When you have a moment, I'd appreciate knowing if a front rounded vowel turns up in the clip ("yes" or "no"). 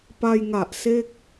no